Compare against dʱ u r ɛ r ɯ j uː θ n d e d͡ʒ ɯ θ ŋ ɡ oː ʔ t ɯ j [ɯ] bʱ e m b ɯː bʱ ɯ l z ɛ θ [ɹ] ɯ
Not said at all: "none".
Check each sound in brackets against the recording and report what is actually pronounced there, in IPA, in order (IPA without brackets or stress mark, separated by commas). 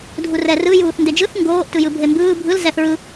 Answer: ɯ, ɹ